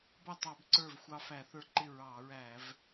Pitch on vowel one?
falling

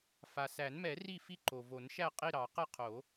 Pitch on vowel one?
low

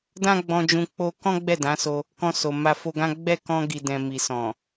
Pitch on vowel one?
high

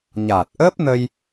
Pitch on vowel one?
low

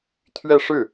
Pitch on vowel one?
falling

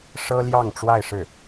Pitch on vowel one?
high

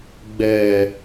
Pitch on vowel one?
low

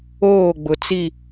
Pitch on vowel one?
falling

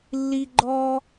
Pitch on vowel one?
high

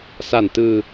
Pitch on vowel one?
low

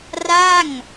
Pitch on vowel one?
falling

